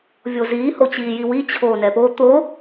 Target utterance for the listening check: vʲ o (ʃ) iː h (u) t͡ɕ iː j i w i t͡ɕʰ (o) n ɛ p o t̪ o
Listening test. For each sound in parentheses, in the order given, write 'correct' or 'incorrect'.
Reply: incorrect, incorrect, incorrect

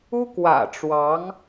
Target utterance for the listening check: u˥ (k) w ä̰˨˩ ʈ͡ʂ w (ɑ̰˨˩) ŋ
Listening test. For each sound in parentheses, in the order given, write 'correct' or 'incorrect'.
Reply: correct, incorrect

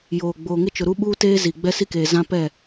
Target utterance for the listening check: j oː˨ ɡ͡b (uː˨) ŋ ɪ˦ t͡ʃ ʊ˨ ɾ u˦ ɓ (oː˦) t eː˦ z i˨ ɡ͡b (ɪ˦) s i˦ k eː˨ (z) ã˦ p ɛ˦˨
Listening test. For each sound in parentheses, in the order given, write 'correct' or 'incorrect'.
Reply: incorrect, incorrect, incorrect, correct

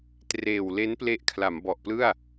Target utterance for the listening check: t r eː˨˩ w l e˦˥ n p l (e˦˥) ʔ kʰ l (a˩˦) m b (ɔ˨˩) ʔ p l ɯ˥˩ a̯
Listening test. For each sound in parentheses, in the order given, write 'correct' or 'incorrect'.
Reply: correct, correct, correct

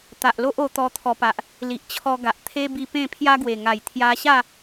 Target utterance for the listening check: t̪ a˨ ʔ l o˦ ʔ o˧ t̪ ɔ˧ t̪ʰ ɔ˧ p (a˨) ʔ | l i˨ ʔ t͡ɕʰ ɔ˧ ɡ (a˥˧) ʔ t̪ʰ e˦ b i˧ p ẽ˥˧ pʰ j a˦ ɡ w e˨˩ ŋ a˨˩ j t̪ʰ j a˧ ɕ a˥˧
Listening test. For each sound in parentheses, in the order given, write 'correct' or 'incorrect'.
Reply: correct, incorrect

